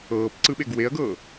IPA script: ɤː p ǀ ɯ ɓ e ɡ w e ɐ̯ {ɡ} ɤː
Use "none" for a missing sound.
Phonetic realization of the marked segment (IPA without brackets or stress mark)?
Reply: ɡ